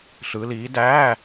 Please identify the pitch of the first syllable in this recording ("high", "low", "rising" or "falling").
rising